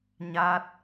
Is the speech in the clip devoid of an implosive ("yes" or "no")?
yes